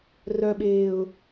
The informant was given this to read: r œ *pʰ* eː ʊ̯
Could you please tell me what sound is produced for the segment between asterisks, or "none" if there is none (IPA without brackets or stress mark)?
ɓ